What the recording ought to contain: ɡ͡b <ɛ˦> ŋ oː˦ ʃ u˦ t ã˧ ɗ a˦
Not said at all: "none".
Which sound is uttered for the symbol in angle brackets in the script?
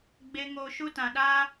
e˦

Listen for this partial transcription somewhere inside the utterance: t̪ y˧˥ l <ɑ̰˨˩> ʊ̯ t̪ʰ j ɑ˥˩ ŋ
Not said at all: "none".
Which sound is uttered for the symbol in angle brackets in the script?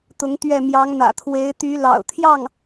ɑ̰˨˩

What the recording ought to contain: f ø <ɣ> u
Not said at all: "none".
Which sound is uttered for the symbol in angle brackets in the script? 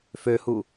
h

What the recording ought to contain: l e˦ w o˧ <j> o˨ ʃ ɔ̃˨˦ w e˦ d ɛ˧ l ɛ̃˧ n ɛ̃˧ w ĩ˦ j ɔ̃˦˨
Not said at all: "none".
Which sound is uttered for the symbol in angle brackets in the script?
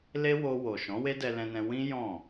w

